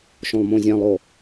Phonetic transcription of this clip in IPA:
ʃ õ lˠ m õ zʲ ã lˠ o

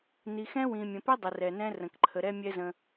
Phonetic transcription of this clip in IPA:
n i˨ x ɛ̃˧ w ĩ˨ mʲ ə̃˨ p ɛ˧ dˤ ə˨ r ɛ˨ n ɛ̃˧ r ə̃˨ k ǃʰ ə˨ ɾ ɛ˧ mʲ ɛ˧ z ə̃˧

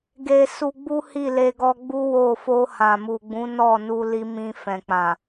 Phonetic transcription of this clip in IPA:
ɡ e˨ s u˧ ɡ͡b u˦ h i˦˨ l e˧ ɡ ɔ˧ ɡ͡b u˦ w o˦˨ f o˧ h ã˨ m u˨ ɡ͡b ũ˨˦ n ɔ˦˨ n u˧ l i˦ m ĩ˦ f ɛ̃˧ k͡p ã˨

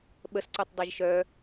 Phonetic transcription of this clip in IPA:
ɓ ə s ǀ u tˤ dˤ ɛ ʒ ʃ œ

